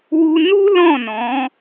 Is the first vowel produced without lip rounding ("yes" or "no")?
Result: no